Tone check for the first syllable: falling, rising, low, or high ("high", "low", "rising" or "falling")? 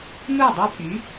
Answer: falling